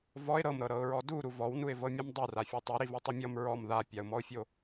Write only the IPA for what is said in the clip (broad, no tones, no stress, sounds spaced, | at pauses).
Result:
v ɔ ɪ̯ ɾ ɤ m ɾ ɤ ɾ ɤ ʊ̯ ɹ ɔ d u ɾ u v ɔ w n u ɪ̯ v ɤ mʲ ɔ m dˤ u r a fʲ ɔ tˤ o ɾ i v o tˤ ɤ mʲ ɔ m ɹ ɔ m ð a pʲ a ʊ̯ m ɔ ʊ̯ fʲ o